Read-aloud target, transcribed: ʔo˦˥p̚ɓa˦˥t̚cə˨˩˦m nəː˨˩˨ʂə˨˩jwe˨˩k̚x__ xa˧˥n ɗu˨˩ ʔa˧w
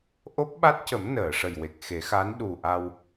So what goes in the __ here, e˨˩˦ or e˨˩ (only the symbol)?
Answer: e˨˩˦